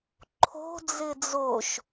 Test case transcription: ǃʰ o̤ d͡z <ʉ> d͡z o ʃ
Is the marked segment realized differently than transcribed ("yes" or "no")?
yes